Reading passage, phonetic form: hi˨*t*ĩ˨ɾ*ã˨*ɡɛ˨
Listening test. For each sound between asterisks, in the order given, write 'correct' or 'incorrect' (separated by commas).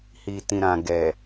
correct, correct